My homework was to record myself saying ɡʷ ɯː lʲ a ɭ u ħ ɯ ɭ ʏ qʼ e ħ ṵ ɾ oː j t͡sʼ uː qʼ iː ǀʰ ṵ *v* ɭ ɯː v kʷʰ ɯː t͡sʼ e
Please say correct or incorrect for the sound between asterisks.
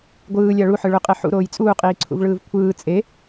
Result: correct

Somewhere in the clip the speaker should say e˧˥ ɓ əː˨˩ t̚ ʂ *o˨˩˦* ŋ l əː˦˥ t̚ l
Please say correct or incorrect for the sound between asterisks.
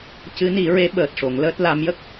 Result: correct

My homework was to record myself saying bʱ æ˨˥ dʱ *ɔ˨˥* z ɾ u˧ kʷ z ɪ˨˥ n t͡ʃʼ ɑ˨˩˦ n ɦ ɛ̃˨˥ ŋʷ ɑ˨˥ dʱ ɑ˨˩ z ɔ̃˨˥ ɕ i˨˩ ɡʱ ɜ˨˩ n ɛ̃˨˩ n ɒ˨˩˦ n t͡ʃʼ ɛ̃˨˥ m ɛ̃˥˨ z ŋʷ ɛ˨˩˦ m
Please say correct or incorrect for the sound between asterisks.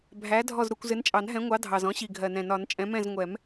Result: incorrect: ɔ˥˨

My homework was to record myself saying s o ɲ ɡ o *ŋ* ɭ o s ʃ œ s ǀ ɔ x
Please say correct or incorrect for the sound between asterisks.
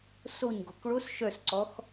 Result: incorrect: k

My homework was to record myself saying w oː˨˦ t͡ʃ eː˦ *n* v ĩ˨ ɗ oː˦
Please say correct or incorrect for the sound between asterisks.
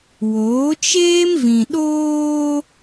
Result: incorrect: m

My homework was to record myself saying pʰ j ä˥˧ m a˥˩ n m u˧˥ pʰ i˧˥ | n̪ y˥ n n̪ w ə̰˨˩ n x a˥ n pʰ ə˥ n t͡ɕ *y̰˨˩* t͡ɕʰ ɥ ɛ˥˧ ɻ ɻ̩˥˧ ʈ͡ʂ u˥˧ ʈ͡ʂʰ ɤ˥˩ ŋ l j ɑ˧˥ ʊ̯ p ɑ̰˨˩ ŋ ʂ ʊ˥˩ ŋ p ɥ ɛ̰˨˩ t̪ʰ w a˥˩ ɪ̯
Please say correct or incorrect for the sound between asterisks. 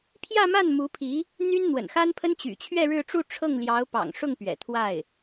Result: correct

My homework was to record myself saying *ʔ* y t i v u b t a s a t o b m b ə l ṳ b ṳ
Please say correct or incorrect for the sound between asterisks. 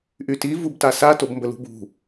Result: correct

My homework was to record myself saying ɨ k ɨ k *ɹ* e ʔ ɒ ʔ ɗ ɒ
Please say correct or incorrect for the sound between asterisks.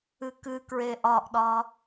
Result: correct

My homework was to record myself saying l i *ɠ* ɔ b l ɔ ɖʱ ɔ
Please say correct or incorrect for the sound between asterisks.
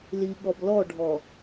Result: correct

